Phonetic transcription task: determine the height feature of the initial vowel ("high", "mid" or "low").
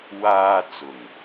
low